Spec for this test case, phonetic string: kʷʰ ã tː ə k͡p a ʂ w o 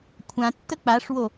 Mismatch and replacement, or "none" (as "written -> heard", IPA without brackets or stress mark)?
none